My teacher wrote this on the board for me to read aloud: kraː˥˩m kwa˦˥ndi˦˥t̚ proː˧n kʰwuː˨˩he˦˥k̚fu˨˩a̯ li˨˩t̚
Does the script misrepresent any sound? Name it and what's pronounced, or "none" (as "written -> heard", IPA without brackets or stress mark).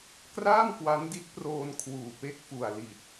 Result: h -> p